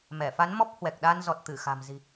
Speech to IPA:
mɛ˧˩fa˨˦n mɔ˦˥p̚hwɛ˨˩k̚ɗa˧nzɔ˨˩t̚ t̪ɨ˧˩xa̤˨˩mzi̤˨˩

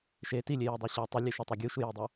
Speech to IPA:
ʃe tilʲejɛdˤo ɕɛ tˤʊlʲe ʃɪtˤɛ ɡʲuʃujidˤo

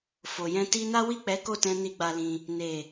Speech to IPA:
fo˨jɛ̃˧ ti˧na˦wi˦˨k͡pɛ˨˦ ko˦˨tɛ̃˧ni˧ ɡ͡ba˧lĩ˧ | ne˨

